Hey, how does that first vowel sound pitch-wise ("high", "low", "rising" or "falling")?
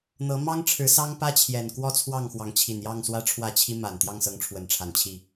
rising